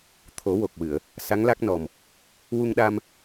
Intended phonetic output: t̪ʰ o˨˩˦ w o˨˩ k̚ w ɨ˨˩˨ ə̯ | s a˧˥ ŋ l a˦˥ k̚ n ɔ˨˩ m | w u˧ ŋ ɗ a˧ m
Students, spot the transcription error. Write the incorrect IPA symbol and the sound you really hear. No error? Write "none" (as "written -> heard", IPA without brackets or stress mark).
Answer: none